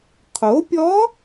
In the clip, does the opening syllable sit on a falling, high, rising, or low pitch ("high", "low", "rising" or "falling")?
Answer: rising